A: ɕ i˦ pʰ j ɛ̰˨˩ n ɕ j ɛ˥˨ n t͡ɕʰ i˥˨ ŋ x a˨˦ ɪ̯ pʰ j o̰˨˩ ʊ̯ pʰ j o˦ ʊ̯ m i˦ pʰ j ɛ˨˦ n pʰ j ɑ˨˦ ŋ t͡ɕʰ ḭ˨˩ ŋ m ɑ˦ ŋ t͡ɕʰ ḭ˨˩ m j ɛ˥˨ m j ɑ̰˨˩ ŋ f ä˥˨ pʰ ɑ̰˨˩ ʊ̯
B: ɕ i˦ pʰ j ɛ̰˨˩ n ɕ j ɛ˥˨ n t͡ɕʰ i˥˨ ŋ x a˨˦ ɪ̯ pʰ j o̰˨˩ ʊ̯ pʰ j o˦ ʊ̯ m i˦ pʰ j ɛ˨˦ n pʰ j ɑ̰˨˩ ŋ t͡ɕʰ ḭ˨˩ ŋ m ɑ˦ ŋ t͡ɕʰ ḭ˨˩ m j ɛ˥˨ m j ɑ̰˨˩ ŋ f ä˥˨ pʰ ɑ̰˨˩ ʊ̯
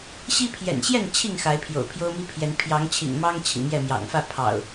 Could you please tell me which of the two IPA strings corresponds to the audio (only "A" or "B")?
A